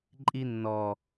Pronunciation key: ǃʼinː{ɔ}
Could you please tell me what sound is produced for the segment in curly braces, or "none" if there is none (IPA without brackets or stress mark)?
ɔ